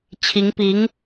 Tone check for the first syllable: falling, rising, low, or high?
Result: rising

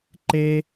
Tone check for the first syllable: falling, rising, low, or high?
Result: high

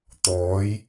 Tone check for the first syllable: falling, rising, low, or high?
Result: rising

